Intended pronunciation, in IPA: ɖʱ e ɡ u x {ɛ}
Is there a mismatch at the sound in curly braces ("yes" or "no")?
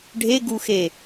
yes